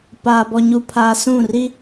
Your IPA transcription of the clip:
p aː˨ b ɔ˨ ɲ u˨ pʰ aː˨ s ũ˦˨ r i˦

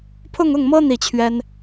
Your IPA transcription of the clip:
pʰ ʊ˥˧ ŋ ʊ˥˩ ŋ m ɤ˥ n̪ i˥˩ t͡ɕʰ ɥ ɛ˥ n

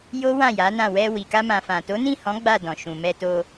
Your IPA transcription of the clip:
j o˦ w ã˦˨ j a˨˦ n ã˦˨ w ɛ˧ w i˨ k a˧ m ã˨ f ã˨ t o˨˦ n ĩ˦˨ h ɔ̃˨˦ ɡ͡b a˦˨ d ɔ̃˨ ʃ ũ˨ m ɛ˧ t o˧

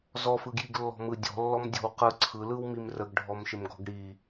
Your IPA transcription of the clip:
z ɔ f ɯ ɡ j i ɡ lː ɔ̤ m ɯ dʲ ɔ̤ lː ɔ m dʲ ɔ̤ w q ɯ ǀʰ ɯ l ɯ w m i m r ə ɡ ɖʱ ɔ m ʃ ɪ m ɡ ɔ̤ ɡ ɽ i

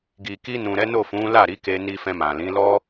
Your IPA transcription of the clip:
ɡ i˨ k i˧ n ũ˨ ɾ ɛ˨˦ n o˦˨ f ũ˨˦ l a˦˨ ɾ i˨˦ k e˧ n i˧ f ɛ̃˧ m ã˨ l ĩ˨˦ l ɔ˦

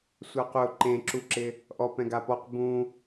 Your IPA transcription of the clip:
sʷ a q ʊ ǃ ẽ ǁ u ǁ ɪ | ʔ ɔ p ɛ̃ ɡ a p ɔ q b ũ

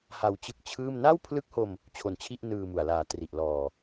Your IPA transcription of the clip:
h a˧ w t͡ɕ ɯ˦˥ k̚ t͡ɕʰ ɯː˥˩ m n aː˥˩ w pʰ l ɯ˦˥ k̚ h o˧ m | t͡ɕʰ o˧ n t͡ɕʰ i˥˩ ʔ n ɯː˧ m u˨˩ a̯ l aː˨˩ t r i˨˩ ʔ l ɔː˨˩

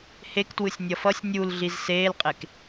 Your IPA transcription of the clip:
h e k t w ɯ sʲ nʲ ʌ f ʌ sʲ nʲ u l ɮ i z s eː l qʼ e k

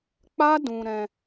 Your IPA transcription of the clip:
k͡p a˦ d ũ˧ ɾ ɛ̃˧

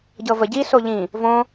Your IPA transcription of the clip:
ɟ ɤ v ə ɟ i s o ʎ ĩ | v õ

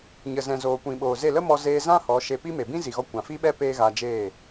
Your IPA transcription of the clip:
ɲ ə˨ z ɛ̃˨ z oː˨ kʷ ĩ˨ ɓ oː˨ z e˦˨ l ə˦ m ɔ˧ z eː˧ z ã˦ h ɔ˨˦ ʃ e˧ p i˦ m e˨ b ĩ˦ z i˨ ɣ ɔ˧ kʷ ã˨ f i˦ ɓ ɛ˦ p eː˦ ɣ a˧ d͡ʒ eː˦˨

